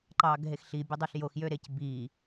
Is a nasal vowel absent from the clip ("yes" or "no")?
yes